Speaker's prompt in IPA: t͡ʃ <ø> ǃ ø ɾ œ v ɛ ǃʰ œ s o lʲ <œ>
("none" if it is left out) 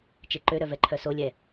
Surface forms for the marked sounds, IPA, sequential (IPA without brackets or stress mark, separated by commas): e, ɛ